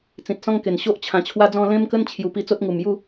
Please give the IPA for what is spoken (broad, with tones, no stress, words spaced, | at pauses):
t͡sĩ˨t̚sɔ̃˦ŋke˨˩n ɕo˦ʔ t͡ɕʰã˨˩ t͡ɕʰwa˧d͡zɔ̃˧ lẽ˦mkə˦n t͡ɕʰju˨˩pi˧ t͡so˦t̚ŋu˨˩mju˥˧